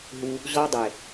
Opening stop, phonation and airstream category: plain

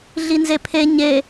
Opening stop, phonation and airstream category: aspirated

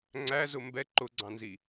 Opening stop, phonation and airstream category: click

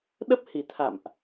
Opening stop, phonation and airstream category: implosive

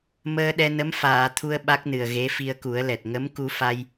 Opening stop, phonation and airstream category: implosive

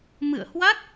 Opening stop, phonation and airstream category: plain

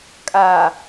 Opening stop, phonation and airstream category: ejective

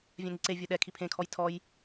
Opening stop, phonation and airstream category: click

